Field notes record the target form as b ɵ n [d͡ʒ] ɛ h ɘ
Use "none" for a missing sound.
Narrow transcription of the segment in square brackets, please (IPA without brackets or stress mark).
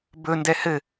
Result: d